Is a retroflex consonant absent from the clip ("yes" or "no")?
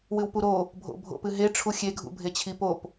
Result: no